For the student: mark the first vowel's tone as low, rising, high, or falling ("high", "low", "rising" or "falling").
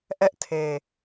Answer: high